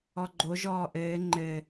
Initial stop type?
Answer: click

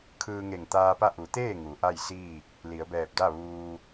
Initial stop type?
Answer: aspirated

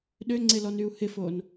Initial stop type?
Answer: implosive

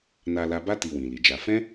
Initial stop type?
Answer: plain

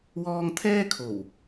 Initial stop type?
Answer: aspirated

